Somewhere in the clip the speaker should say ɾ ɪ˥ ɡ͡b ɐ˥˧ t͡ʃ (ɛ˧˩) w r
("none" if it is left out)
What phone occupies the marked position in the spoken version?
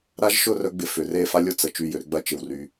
ɪ˧˩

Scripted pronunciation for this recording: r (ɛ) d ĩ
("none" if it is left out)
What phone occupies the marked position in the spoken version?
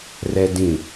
ɛ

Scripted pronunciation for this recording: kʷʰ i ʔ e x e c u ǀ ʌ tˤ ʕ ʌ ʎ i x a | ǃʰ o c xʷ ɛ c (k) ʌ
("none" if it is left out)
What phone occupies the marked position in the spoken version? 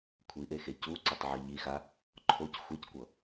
kʷ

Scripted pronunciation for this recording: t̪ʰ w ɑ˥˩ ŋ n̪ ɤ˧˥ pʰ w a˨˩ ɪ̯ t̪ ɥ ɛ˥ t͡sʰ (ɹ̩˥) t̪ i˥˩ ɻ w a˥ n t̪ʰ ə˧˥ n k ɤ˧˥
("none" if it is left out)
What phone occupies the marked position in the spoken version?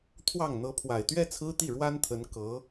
ɹ̩˥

